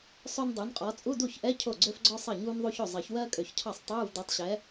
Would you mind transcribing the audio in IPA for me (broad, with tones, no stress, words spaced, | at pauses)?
sˤø˥ndˤu˨˥nqʼɔ˨˥ t͡sʼu˧˥˧du˥˩çʔɛ˧˥˧ cʰo˥˩ɡ͡ǀø˥fɡ͡ǀɔ˥ sˤɜ˥˩ɲuː˥nðˤu˥ço˥˩ zˤɜ˨˩˦çwɜː˥kʼø˨˩˦çcʰɑ˥˩sˤ tˤuː˧˥˧vdɔ˨˥tˤɕɛ˨˥